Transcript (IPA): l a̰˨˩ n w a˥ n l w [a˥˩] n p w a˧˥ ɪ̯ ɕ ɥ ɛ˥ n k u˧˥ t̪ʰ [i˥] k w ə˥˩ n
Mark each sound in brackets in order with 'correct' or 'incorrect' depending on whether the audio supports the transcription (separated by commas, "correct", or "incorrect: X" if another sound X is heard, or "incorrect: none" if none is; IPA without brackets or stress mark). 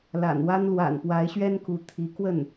incorrect: a̰˨˩, incorrect: i˧˥